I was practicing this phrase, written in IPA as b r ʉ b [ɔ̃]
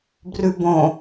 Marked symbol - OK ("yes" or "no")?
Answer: no